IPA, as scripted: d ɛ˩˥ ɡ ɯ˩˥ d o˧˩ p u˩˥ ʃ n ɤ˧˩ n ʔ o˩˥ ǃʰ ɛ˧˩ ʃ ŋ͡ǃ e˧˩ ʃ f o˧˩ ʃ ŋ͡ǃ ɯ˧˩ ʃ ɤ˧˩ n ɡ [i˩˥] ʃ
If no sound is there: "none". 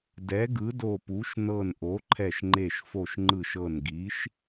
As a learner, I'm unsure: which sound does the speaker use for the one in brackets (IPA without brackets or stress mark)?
i˩˥